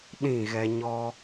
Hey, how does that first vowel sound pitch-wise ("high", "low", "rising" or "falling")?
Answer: falling